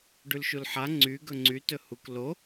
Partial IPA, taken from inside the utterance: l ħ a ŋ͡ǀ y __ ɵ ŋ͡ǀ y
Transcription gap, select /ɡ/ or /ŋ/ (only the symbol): ɡ